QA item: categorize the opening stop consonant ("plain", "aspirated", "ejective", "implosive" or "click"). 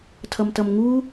aspirated